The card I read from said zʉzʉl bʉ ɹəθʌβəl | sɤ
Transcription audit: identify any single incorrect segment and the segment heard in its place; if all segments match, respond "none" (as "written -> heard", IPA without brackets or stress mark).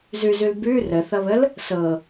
ɹ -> r